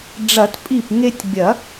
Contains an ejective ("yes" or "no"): yes